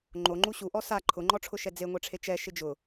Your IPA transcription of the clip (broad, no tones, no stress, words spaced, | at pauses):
ŋ͡ǃoŋ͡ǃu ɕuʔɔ sa ǃʰʊŋ͡ǃɔʈ͡ʂʰʊʃɛ d͡zeŋʷɛʈ͡ʂʰe t͡ʃɛʃɪ d͡ʒʊ